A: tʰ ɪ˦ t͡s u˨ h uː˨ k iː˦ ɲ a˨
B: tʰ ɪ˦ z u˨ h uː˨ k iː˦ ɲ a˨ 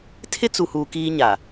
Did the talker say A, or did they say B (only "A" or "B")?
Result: A